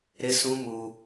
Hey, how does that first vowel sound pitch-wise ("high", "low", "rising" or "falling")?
high